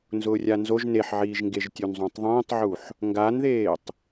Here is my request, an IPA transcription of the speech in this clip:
nzʊːrʲanzoʒ neħʕiːʒŋɡeʒ tʲunzˤõtˤðˤĩːtˤʕuħ | ŋɡanðeːtˤ

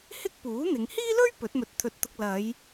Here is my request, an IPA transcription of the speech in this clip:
hɪ˥k̚puː˨˥n̪ɪ˨˧ŋ hiː˥lɵ˥ɥ pɵ˨˥t̚mɵ˧t̚t̪ʰɵ˧t̚t̪ʊ˧k̚ lɐ˨˧j

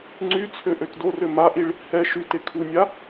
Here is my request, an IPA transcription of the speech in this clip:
ŋ͡ǀyt͡sʰø ʔøtdorø maʔiɭ | hɛ ʃy tekʰunʲa

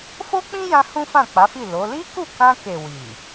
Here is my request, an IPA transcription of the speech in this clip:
fo˦k͡pĩ˦jã˧ hũ˦fã˦˨k͡pa˨˦fi˦˨ lo˨˦ li˦ku˦˨kã˧ke˨ wi˨

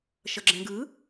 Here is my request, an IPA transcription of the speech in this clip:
ʃʌɡ͡ǁɛ̃ɡɯ

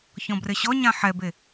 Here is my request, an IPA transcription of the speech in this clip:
çɔ̃brɘɕɔɲã ħɛbe

